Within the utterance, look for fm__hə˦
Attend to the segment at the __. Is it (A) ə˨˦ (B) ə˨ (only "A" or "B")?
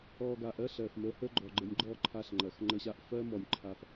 A